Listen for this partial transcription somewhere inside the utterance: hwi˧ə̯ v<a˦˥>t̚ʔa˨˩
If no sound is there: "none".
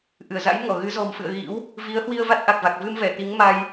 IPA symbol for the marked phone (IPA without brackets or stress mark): a˦˥